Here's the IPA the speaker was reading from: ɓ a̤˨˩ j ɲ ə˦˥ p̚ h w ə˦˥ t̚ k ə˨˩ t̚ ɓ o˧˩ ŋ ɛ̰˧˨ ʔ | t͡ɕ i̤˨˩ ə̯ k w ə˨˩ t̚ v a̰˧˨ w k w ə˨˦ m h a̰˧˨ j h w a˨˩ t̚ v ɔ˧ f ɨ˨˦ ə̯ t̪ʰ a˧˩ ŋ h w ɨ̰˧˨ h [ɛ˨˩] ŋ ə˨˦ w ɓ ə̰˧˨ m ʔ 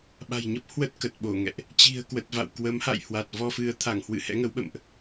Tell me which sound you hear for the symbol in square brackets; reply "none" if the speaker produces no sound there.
ɛ̰˧˥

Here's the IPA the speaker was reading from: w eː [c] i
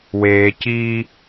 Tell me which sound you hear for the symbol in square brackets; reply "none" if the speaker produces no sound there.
c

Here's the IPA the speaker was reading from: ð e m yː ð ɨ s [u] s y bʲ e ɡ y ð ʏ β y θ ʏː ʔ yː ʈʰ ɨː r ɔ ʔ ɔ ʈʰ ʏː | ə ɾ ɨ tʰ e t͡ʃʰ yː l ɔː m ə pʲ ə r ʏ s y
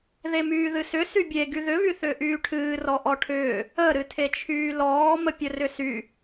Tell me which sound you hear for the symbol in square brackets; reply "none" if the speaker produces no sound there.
ʏ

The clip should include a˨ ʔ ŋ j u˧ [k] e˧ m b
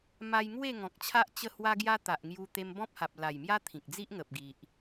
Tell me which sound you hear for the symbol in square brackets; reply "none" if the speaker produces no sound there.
t̪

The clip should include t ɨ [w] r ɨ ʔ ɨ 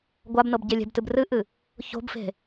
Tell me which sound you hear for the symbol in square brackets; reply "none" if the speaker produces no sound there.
b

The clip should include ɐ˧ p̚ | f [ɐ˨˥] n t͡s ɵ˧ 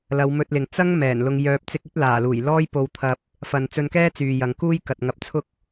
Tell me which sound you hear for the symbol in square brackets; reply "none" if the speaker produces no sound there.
ɐ˧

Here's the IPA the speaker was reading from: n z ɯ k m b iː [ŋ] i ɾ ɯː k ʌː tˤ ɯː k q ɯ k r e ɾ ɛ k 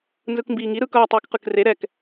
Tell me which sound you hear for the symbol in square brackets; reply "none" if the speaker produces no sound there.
ŋ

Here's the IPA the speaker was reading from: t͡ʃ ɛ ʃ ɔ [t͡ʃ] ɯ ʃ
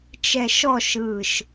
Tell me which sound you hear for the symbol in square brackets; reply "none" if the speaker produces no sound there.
ʃ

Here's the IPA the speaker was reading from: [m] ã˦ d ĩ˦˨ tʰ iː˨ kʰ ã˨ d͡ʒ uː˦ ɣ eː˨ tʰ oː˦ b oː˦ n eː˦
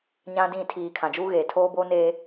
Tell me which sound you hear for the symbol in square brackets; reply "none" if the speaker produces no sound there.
ɲ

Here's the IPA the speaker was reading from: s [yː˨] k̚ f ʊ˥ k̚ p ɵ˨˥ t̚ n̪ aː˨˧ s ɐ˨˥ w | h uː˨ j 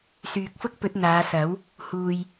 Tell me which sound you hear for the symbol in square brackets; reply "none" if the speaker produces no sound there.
yː˨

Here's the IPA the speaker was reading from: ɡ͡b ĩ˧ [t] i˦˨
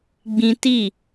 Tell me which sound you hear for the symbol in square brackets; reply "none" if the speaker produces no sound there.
t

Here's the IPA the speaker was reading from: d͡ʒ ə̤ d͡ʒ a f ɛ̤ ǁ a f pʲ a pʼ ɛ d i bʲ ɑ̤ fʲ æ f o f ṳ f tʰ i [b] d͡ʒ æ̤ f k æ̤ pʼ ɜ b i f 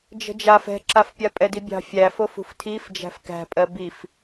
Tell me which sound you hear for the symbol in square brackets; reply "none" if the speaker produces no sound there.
f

